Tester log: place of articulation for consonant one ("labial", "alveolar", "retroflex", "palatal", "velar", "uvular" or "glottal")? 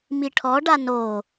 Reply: labial